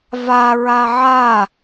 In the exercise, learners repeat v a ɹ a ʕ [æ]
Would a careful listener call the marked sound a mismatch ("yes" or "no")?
yes